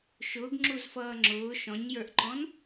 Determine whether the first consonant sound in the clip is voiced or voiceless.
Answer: voiceless